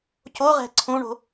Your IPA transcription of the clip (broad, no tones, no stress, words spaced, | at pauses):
coʁɛ̤ ǀʰũɳo̤